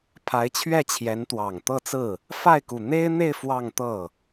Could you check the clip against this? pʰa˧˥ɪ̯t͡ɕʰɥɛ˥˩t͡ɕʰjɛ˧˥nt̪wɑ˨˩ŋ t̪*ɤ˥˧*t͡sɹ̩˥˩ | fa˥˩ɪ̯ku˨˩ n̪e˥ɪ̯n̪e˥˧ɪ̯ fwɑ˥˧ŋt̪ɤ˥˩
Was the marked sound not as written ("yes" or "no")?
no